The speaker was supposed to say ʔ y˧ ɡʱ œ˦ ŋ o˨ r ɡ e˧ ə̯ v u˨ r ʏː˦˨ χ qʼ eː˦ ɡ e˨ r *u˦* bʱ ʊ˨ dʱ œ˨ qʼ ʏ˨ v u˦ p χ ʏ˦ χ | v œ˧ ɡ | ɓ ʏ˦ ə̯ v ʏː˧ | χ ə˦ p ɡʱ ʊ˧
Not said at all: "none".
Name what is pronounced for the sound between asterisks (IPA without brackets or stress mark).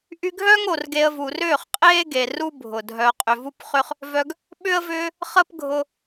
u˦